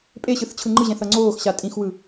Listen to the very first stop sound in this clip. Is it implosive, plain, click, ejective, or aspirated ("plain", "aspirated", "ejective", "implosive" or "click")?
ejective